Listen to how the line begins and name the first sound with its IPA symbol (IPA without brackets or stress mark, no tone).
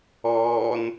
ɔː